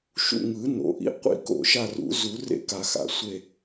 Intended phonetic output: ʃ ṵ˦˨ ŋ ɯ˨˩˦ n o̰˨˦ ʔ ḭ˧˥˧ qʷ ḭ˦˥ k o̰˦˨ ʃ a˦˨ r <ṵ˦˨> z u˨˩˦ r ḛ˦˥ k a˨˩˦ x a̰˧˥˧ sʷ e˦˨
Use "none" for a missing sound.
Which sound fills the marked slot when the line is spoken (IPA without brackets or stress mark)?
ṵ˨˩˦